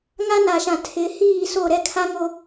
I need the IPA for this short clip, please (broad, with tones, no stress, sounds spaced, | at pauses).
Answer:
ŋ a˦ n a˨ ʃ ã˨ tʰ ɪ˨˦ h iː˦˨ s o˦˨ ɾ ɛ˦ kʰ a˦ ŋ o˦